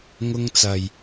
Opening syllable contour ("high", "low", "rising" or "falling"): high